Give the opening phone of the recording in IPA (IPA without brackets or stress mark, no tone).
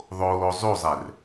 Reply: ðˤ